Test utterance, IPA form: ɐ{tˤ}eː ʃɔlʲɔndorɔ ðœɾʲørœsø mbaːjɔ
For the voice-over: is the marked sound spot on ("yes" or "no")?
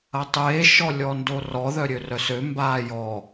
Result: yes